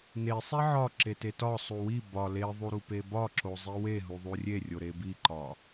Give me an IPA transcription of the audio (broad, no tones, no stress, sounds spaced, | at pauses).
n e sˤ e ʕ ɒ ǁ e t e t ɒ sˤ u w i b ɒ l e ðˤ u ɾ u p e b ɒ ǁ o zˤ i w e ɦ u ðˤ u rʲ e rʲ o ɾ e b i ǃ ɒ